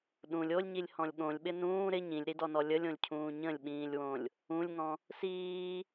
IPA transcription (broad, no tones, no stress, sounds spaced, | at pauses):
ɗ ũ lʲ o lʲ ɲ i lʲ h ɔ̃ lʲ ɠ õ lʲ ɓ ɪ n ũː ɾ ɪ ɲ ĩ lʲ ɾ i d ɔ n ɔ lʲ ə lʲ õ lʲ cʰ ũː ɲ ə̃ lʲ ɓ ĩː lʲ w õ lʲ | ũ lʲ ŋ ɔ̃ | s iː